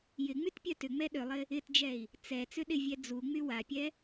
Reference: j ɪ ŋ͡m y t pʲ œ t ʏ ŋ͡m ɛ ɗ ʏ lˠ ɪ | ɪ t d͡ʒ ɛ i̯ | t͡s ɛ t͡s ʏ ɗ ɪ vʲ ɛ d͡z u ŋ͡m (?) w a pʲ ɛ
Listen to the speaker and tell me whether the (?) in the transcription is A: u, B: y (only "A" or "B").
B